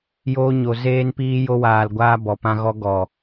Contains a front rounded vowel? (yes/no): no